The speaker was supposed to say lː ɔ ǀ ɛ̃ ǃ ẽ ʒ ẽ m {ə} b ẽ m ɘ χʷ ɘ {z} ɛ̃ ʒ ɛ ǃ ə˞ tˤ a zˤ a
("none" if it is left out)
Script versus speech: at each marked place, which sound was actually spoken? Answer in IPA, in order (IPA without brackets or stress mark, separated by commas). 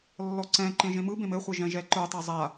ɯ, ʒ